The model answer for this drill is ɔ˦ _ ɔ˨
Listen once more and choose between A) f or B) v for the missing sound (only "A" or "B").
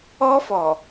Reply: A